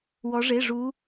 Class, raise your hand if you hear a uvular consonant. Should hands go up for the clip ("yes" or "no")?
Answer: no